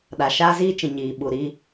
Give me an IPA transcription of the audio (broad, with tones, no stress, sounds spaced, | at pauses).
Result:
ɗ a˨ ʃ aː˦ z iː˦ t͡ʃ ĩ˨ ɲ iː˨ ɓ u˨ ɾ iː˦